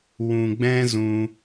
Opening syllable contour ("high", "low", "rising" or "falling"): low